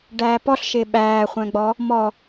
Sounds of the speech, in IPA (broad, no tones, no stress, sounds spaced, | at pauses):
ɖ æː p ɔ ɬ ʃ ɪː ɓ æː χʷ æ̃ ɡ͡b ɔ | m ɔ